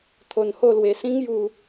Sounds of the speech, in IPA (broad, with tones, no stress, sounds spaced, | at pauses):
t̪ʰ o˧ n h o˥˧ l w e˧ s ĩ˦ ŋ j u˧